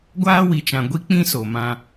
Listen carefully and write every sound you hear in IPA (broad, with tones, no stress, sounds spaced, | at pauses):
ɡʷ aː˦ w i˨ t͡ʃ ã˨ ɡʷ i˦ k͡p ĩ˦ s o˨ m ã˦